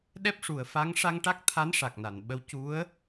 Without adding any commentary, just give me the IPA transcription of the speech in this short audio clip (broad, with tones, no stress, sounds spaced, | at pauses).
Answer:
ɗ ɛ˦˥ p̚ ʂ u˨˩˨ ə̯ f a˧˥ ŋ ʂ a˧ ŋ ʈ a˦˥ k̚ t̪ʰ a˧˥ n ʂ a˨˩ k̚ n a˨˩˨ n ɓ ə˧˥ w c u˧˥ ə̯